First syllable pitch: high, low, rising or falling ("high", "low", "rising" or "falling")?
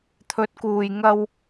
rising